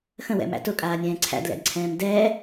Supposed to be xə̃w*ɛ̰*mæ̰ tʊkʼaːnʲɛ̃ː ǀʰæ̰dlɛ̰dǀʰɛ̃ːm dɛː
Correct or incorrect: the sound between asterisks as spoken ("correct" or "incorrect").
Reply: correct